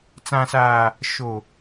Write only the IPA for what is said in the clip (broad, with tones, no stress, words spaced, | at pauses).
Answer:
t͡sã˨saː˨ | ʃo˨